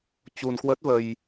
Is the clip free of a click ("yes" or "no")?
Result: yes